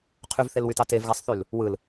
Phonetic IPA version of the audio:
qʰyvθelwytɑ tevɣæsˤθyl | wɯl

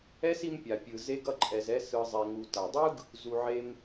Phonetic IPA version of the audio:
ɛ˥si˦m pʲa˩pʲɯ˩ ze˥ɡʌ˥ǃʼɛ˨zɛ˥ sɯ˨zˤɛ˨ŋu˨ ta˩dˤɯ˥ɡ | zu˩ʕe˨m

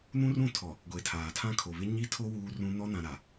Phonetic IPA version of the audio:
nũ˦rũ˦˨tʰɔ˨ | ɡʷe˨tʰaː˨tʰã˦ kʰo˨βɪ˦ ɲi˦tʰo˦ wuː˦rũ˦ nɔ˦nã˨ ɾa˨

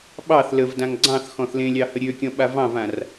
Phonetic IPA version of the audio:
ɓɑθ ləvdãŋ ɡ͡ǀɑ̃θ xɔ̃θlẽlʲɑ həɾʲøkʲɔ̃ ɓavɑ̃vãr

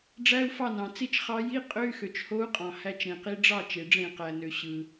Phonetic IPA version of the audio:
ɖ͡ʐæ˧˥˧u̯ fɑ˥˩nɑ̃˩ t͡si˥˩t͡ʃ χɑ˧˥ ji˧˥˧ qʼø˧˥˧y̯xø˩t͡ʃho˧˥u̯ qʼɑ̃˩hæ˧˥˧t͡ʃ ɾẽ˩qi˧˥ ɖ͡ʐɑ˥˩ t͡ʃe˩ɖ͡ʐẽ˧˩˧qæ˩nø˩ ɕɯ˩

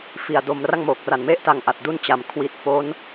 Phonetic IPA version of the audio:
fi˨˩a̯ do˧m ra˥˩ŋmoː˨˩k̚ra˨˩nme˥˩ʔ ta˧ŋʔa˨˩t̚ du˥˩nt͡ɕa˩˦m kʰwi˨˩t̚fo˦˥n

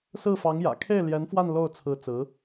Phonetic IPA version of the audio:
sɹ̩˥˩fɑ˧˥ŋjä̰˨˩ kʰe˥˩ɪ̯ljɛ˧˥nfwa˥˧n lo˥˩ʊ̯ t͡sʰɹ̩˧˥t͡sɹ̩˧˥

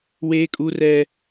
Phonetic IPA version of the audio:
weː˦kʼu˦rɛ˦

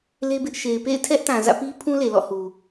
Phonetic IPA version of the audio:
le˦bɪ˦ʔ ʃe˨ɪ̯pḛ˦˨ɪ̯ tʰɛ˦ʔtã˨ zä̰˦˨ pi˦ pʰũ˦ le˨lɔ̰˦˨hu˨

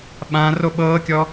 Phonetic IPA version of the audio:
ɓã roɓɤːkʲɔ

